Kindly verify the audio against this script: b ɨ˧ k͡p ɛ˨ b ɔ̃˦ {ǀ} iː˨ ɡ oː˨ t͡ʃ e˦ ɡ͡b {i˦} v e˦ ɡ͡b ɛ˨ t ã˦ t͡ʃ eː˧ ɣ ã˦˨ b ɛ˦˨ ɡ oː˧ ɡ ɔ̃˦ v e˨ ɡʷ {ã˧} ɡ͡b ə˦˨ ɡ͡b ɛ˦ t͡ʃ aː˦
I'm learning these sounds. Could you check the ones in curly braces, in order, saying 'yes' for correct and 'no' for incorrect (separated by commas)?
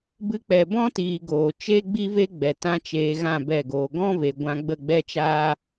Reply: no, yes, yes